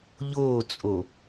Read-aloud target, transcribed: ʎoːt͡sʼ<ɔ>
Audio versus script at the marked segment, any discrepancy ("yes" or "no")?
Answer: yes